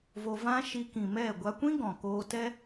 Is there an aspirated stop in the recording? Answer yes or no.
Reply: no